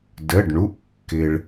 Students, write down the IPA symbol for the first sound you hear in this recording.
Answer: d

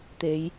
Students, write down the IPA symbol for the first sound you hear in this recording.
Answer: t̪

